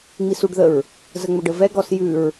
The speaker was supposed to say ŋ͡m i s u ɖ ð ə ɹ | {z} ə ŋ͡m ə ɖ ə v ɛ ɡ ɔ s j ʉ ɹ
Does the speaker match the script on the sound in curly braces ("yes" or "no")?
yes